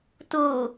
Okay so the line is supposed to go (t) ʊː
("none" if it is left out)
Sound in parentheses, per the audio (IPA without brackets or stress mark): t